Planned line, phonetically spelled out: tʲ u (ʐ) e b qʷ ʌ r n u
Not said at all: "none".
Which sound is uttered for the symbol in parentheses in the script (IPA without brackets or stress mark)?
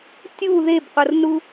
ð